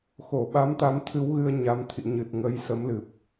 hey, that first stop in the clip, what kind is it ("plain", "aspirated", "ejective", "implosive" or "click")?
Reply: implosive